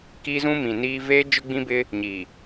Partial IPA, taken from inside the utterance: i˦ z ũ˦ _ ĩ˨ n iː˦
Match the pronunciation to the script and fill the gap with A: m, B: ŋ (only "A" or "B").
A